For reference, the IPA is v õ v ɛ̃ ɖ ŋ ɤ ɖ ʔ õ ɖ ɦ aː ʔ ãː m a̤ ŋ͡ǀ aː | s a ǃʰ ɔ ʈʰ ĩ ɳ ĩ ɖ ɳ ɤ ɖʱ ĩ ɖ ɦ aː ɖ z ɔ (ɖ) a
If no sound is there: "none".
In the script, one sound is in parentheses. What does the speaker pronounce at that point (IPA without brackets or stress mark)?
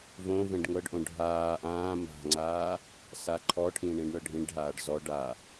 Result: ɖ